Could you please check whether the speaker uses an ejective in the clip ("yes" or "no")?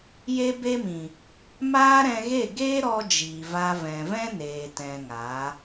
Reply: no